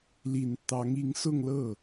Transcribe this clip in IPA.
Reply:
l i˨˩ n t̪ ɑ˧˥ ŋ i˧˥ ŋ s ʊ˥˧ ŋ l ɤ˥˩

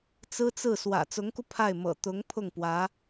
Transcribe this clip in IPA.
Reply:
t͡s ɹ̩˥ t͡s ɹ̩˥˩ s w ä̰˨˩ t͡s ʊ˧˥ ŋ k u˧ pʰ a˥˩ ɪ̯ m ɤ̰˨˩ t̪ ʊ˧˥ ŋ pʰ ʊ˥˩ ŋ p w ä˧˥

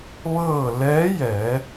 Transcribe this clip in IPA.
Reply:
ʋ ɤː˥˨ l ɛː˧˥ j ɛː˩˧

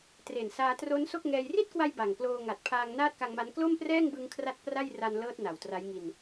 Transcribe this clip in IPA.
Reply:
t r e˨˩ n s aː˧ t r o˦˥ n s o˥˩ k̚ ŋ ɛː˧ j r i˥˩ t̚ k w a˧ j b a˨˩ ŋ k l oː˧ ŋ a˨˩ t̚ pʰ aː˧ ŋ n aː˥˩ t̚ k a˧ ŋ m a˦˥ n k l o˥˩ m p r ɛː˥˩ ŋ b ɯ˧ ŋ kʰ r a˦˥ t̚ p r a˥˩ j r a˧ n l ɤː˦˥ t̚ n a˨˩ w t r a˦˥ j ŋ i˧ n

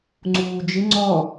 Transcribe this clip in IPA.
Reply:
ŋ͡ǀ uː d͡ʒ ɪ ŋ͡ǀ ɔ

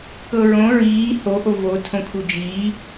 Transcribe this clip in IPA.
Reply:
k ɤ ɹ õ ɹ iː h o ʔ o v o tʰ õ kʰ u d͡ʒ iː

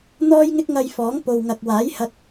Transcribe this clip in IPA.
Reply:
n̪ ɔː˥ j ŋ ɪ˥ k̚ ŋ ɐ˧ j f ɔː˨˥ ŋ p o˨ w ŋ ɐ˨ k̚ w aː˨˥ j h ɐ˧ t̚

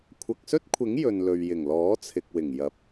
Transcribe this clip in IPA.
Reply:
kʷʰ ɐ˨ k̚ s ɵ˥ t̚ kʷʰ ɪ˨˥ ŋ j ɵ˨ n l ɵ˨ ɥ j ɪ˨˩ ŋ l ɔː˨˥ t͡sʰ ɪ˨ k̚ w ɪ˨˩ ŋ j ɐ˨˥ p̚

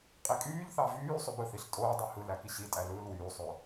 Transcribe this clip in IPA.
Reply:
qʼ i kʼ yː ʎ θ ɑ v yː sˤ ø b ɯ θ i ɬ tʼ oː dˤ ø h ɯ l æ k i ɕ i tʼ æ l ɯː l w yː sˤ ø

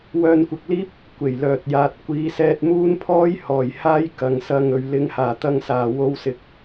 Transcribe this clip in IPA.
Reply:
w œː˧ n kʷ ɪ˨ k̚ l iː˥ p̚ | kʷ e˨˩ j l œː˨ t̚ j aː˨ t̚ kʷ iː˨˥ s ɛː˧ t̚ m uː˥ n pʰ ɔː˥ j h ɔː˨˩ j h aː˥ j k ɐ˨˧ ŋ s ɐ˧ ŋ ɵ˨ ɥ l ɪ˨ ŋ h aː˨˩ t̪ ɐ˧ ŋ s aː˨˩ w o˧ w s ɪ˨ k̚

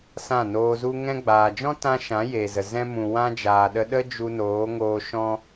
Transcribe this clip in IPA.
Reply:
s ã˦˨ n oː˧ z u˦ ŋ ɛ̃˧ ɡ͡b aː˨ d͡ʒ ɔ̃˦ t ã˦ ʃ ã˨˦ j eː˨ z ə˨ z ɛ̃˧ m ũ˨ w ã˧ d͡ʒ aː˨ ɗ ə˧ ɗ ə˦ d͡ʒ u˧ n oː˨˦ ŋ oː˧ ʃ ɔ̃˦

